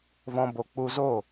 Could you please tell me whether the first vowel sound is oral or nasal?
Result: nasal